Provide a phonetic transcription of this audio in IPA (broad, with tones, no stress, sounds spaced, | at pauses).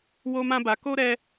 w o˧ m ã˧ b a˨ k o˧ ɾ ɛ˧